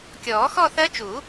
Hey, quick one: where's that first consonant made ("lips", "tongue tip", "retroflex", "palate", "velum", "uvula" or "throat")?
velum